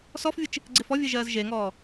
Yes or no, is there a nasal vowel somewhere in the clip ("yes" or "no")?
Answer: no